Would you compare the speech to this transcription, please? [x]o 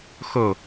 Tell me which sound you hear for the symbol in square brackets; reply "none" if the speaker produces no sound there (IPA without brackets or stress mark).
x